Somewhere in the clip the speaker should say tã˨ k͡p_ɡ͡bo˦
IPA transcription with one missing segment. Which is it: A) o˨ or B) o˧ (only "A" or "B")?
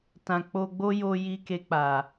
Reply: B